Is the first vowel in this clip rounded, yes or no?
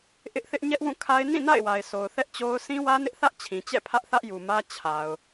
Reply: no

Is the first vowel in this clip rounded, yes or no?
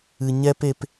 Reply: no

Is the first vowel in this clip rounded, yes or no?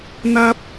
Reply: no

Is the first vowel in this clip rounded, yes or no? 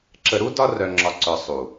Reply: no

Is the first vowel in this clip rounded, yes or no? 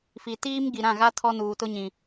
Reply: no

